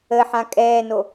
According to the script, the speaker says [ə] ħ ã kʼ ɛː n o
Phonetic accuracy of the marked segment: correct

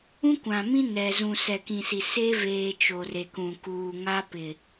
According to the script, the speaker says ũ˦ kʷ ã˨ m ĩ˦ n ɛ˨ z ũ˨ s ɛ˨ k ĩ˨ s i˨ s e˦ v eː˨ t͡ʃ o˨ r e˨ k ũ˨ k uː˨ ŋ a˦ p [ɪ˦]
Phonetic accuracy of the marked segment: incorrect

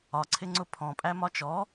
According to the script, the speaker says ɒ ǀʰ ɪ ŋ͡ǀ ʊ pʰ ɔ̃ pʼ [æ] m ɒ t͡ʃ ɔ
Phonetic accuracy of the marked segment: correct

